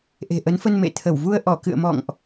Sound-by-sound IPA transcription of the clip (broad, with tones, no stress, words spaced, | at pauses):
ʔe̤˨˩ʔə˨˦nfə˧n mḛ˧˨t̪ʰə˧˩wvu˧ə̯ ʔɔ˧˩kɨ̰˧˨ə̯mɔ̰˧˨ŋʔ